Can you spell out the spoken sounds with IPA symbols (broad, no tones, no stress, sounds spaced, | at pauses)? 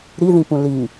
ɾ i ð ĩ p ũ l i